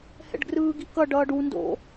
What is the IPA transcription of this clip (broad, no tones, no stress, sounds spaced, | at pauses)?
h ɛ̰ ɖ ɡ r ɯː ɡ i k ʌ ɖ ʌː ɖ u n d o̰